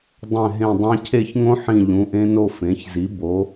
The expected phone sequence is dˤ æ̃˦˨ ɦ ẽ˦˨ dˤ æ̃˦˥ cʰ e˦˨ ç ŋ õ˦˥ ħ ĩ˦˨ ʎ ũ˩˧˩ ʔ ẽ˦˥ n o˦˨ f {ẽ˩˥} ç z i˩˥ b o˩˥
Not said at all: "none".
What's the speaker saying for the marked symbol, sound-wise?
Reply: ẽ˩˥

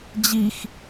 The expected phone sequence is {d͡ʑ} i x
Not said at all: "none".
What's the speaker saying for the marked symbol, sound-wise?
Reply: d͡ʑ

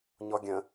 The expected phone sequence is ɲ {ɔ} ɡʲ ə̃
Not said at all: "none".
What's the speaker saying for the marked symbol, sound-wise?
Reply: ɔ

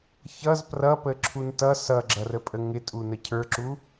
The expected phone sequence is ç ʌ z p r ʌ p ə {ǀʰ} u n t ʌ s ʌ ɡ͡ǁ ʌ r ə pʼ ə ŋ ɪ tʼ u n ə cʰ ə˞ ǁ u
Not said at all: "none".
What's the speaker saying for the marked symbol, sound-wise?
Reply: ǁʰ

